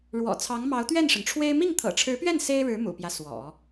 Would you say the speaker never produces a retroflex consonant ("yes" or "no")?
no